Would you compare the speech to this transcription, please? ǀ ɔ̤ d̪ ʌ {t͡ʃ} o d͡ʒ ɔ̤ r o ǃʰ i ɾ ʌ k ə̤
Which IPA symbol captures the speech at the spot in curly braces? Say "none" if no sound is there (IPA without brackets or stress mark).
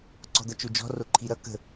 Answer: t͡ʃ